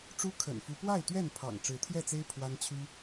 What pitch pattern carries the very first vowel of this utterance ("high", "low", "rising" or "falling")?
high